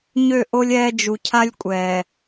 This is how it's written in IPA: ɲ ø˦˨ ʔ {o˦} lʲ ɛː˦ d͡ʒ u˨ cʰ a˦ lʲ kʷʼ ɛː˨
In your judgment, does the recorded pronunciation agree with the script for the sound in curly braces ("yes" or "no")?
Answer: yes